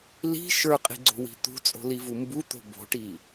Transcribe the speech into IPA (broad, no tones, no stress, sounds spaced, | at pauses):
l i̤ ʃ ə˞ qʼ i̤ ɡ͡ǀ o̤ w i̤ t̪ ṳ t͡sʼ o̤ l i v u m b u t̪ o̤ b o̤ ʈ i